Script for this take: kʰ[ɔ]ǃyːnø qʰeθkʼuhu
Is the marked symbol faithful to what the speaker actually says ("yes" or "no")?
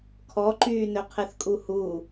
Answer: yes